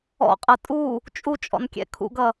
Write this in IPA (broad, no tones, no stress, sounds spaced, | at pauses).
ɔ̰ qʼ ʌ tʼ u | t͡ʃʼ u t͡ʃʼ ɔ̰ n kʲ ɛ̰ kʰ ṵ ɡ ʌ